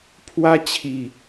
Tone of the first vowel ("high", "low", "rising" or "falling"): high